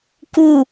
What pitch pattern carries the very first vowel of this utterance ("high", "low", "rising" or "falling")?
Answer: falling